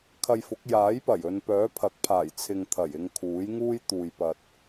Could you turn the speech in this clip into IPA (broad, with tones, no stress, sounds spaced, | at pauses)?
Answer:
kʰ ɐ˧ j f ʊ˨˥ k̚ j aː˨˥ j p ɐ˨˩ j ɵ˨ n p œː˨˥ pʰ ɐ˨˥ k̚ pʰ aː˨˩ j t͡sʰ ɪ˨ ŋ t̪ʰ ɐ˨˩ j ɪ˧ ŋ kʰ uː˨˥ j ŋ uː˥ j t̪ uː˨ j p ɐ˨ t̚